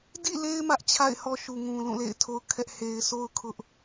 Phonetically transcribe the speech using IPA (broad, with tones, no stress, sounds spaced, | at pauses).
d ḭ˦˨ l e˦ ɪ̯ m ä˦ ʔ t͡ɕʰ a̰˦˨ ɪ̯ h ɔ˦ ʃ u˨ ŋ ũ˨ l ũ˦˨ l ḛ˦˨ ɪ̯ tʰ o˦ ʊ̯ kʰ ɛ˦ ʔ h e˨ ɪ̯ s o˦ ʊ̯ kʰ ʊ˦ ʔ